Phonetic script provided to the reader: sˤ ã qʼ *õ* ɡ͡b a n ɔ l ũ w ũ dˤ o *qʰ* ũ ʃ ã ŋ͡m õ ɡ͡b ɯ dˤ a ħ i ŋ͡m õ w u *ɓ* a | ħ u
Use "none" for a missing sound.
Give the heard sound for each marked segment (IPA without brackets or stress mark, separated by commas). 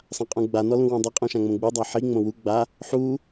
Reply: ũ, qʼ, ɡ͡b